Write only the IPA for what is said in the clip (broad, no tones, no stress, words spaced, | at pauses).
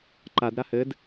ǃad ɾahɘd